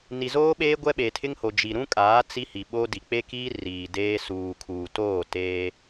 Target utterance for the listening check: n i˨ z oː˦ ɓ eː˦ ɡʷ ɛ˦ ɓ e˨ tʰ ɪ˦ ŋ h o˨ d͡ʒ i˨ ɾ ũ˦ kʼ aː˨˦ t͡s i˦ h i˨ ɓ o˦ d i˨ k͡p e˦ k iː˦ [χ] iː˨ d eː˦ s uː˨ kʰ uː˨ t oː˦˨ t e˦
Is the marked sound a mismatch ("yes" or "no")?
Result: yes